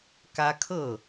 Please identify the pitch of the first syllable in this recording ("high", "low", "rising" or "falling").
high